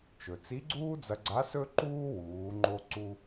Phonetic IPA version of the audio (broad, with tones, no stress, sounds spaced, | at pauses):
t͡ʃ ɵ˩ t͡s i˧˥ ɡ͡ǀ uː˥ d͡z ɐ˧ ɡ͡ǀ a˧˥ s ɵ˥ ǃ uː˥ w uː˩˧ ŋ͡ǃ o˧ ǀ u˧